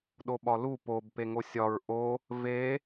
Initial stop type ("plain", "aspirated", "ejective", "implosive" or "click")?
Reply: implosive